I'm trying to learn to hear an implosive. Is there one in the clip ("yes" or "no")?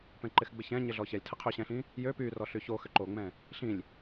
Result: no